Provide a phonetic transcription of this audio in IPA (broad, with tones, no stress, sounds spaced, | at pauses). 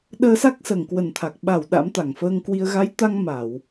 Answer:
ɗ əː˧ s a˦˥ k̚ s əː˧˩ ŋ k w ə˨˩ n t̪ʰ a˨˩ k̚ ɓ a˧˩ w ɗ a̰˧˥ m t̪ a˧˩ ŋ f əː˧ ŋ k w i˧ ə̯ ɣ a˨˦ j t̪ a˧ ŋ m a˧˩˨ w